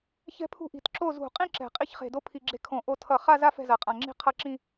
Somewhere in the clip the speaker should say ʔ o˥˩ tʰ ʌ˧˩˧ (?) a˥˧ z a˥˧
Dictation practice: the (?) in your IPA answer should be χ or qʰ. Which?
χ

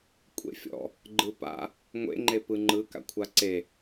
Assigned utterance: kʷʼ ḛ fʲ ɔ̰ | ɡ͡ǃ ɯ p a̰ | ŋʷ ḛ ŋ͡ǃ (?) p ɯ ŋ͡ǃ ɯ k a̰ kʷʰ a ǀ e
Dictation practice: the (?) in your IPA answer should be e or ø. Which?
e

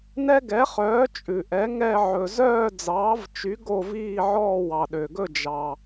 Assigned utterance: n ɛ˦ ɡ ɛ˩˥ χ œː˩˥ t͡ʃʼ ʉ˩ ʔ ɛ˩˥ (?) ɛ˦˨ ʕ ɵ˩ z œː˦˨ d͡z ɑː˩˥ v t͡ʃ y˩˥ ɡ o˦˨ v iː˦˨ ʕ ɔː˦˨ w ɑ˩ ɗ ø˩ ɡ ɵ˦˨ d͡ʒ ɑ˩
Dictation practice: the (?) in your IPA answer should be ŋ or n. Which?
ŋ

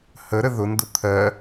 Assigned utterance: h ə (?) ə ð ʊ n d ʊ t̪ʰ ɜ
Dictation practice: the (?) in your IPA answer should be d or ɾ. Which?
ɾ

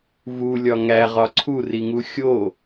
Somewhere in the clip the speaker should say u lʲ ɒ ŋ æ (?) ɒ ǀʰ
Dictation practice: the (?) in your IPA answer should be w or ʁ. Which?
ʁ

